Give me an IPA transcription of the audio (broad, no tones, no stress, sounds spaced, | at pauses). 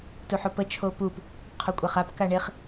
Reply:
t u ħ o p ə t͡ʃʰ o p u p | qʰ o kʷʼ a χ a p k a ɳ e χ